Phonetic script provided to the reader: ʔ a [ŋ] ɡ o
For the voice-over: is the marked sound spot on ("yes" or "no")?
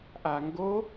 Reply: yes